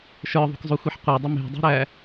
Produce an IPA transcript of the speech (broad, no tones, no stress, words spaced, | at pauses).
ʃə˞ðˤṳkzˤuxʷiħ qʷə˞dˤə me̤dˤṳɾæ